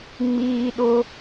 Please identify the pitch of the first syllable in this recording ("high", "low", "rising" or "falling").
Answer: low